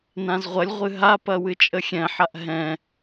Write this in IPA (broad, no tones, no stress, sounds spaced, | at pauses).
n ã z ʁʷ ɐ lʲ ʁʷ ɨ ɦ a p ɐ w ɨ t͡ʃʼ ə xʲ ɛ̃ ħ a ʔ ɦ ɛ̃